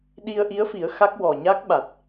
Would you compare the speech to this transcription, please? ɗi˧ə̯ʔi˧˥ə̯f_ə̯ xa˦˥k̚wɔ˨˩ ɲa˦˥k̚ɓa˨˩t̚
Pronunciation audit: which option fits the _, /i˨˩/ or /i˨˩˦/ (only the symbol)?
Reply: i˨˩˦